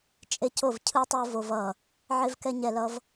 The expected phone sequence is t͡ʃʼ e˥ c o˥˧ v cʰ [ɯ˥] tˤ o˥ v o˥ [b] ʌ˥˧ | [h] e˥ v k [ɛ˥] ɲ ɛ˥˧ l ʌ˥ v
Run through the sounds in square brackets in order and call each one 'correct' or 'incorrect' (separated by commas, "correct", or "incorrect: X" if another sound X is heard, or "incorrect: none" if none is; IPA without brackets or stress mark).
correct, incorrect: v, incorrect: ʕ, correct